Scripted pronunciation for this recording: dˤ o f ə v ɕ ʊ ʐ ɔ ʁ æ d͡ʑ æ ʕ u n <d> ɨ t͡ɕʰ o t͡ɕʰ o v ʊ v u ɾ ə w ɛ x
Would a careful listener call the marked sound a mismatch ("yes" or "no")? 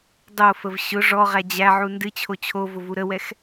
no